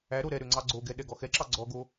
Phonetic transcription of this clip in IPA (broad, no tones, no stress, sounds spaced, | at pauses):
æ ɾ o ɾ ɛ ɾ ø ŋ͡ǀ ɑ ɡ͡ǀ o ɡ ɛ ɗ ɛ ɡ ɔ x ɛ ǁ ɑ ɡ͡ǀ ɔ ɡ o